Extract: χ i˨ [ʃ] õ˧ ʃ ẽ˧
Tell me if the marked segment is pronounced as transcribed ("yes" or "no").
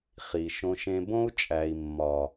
yes